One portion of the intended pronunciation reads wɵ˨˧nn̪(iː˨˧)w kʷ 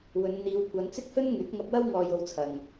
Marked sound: correct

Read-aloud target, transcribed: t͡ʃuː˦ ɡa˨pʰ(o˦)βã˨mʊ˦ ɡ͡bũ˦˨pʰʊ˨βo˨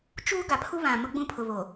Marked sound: incorrect: u˦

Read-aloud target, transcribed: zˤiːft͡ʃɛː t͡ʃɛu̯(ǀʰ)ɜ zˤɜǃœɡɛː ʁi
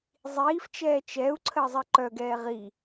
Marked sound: correct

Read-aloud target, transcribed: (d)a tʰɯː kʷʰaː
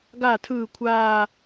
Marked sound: incorrect: ɡ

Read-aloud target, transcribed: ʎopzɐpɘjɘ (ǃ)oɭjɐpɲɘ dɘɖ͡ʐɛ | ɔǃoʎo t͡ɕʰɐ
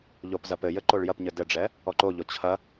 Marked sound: correct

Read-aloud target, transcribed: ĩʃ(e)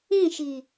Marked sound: incorrect: i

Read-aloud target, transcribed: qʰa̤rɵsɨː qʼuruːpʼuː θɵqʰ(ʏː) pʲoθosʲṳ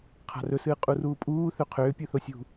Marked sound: correct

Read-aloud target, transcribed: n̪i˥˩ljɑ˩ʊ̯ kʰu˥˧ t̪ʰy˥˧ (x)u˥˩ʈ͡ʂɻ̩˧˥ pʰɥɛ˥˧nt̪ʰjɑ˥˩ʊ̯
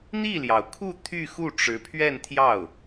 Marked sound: correct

